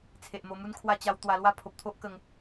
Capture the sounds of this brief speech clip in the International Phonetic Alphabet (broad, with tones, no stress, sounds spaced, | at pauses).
t͡sʰ e˨ ʔ m o˧ m u˦ n kʰ w a˦ t͡ɕ a˧ w t̪ w a˧ l w a˦ pʰ o˨ p̚ t̪ʰ o˦ ʔ k ə˧ ŋ